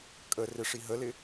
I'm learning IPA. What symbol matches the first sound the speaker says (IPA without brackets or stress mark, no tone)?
kʼ